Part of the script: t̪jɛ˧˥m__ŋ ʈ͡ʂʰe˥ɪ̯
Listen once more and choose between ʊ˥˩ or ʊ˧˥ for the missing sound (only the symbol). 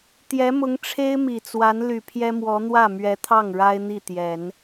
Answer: ʊ˧˥